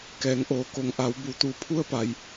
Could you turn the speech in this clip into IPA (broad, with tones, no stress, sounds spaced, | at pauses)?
k ɛː˩˧ ŋ ʔ oː˩˧ k o˩˧ ŋ ʔ a˩˧ w b u˩˧ t̪ u˧˩ pʰ u˧ ə̯ p a˩ j